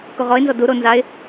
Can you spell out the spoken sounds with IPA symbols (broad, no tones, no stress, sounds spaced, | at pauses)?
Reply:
k o ʁ ɔ ɪ̯ n z ɔ d u ɾ o n z a ɪ̯